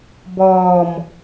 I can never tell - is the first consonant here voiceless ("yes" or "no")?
no